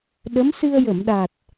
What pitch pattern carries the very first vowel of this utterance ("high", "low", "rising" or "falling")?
rising